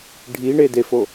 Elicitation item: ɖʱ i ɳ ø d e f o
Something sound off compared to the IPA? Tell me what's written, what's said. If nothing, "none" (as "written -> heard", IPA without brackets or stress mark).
ø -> e